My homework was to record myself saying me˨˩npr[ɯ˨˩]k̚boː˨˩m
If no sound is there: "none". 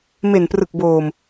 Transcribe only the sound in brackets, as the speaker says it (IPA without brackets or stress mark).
ɯ˨˩